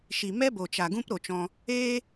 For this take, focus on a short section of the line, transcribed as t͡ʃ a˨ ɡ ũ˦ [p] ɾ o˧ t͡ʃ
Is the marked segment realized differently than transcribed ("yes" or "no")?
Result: no